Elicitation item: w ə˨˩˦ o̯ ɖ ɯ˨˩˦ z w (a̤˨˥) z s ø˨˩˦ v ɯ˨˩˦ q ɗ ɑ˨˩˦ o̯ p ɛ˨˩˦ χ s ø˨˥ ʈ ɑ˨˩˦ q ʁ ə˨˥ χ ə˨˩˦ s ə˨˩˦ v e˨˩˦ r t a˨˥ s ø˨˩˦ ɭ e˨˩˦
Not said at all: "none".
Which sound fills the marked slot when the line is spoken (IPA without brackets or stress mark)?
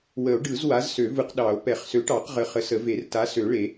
a˨˥